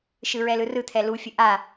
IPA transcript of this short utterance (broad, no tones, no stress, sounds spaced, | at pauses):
ʃ ɯ ɹ ɛ l ɯ r ɯ t̪ʰ ɛ l u fʲ ə ʔ a